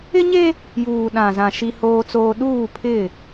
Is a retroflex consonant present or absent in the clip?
absent